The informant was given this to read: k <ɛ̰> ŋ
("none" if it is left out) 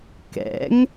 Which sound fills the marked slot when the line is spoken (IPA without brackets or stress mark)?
ɛ̰